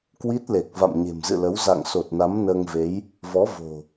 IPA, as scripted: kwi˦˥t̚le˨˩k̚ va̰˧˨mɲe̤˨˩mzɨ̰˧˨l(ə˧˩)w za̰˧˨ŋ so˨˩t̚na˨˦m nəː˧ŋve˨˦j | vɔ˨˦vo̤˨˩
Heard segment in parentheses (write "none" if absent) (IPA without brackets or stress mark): ə˨˦